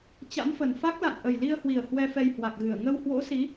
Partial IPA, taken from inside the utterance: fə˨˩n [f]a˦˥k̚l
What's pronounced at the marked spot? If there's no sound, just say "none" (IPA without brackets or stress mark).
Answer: f